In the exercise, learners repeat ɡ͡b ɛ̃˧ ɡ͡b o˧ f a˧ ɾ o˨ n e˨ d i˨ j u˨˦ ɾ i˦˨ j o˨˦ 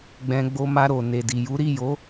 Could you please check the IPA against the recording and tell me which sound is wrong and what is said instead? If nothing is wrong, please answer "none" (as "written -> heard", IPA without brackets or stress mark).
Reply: f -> m